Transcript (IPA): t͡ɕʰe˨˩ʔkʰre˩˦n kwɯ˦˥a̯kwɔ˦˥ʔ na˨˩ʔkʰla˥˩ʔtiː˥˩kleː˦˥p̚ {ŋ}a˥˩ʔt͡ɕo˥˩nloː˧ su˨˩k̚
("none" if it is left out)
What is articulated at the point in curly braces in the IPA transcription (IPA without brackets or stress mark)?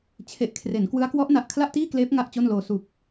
ŋ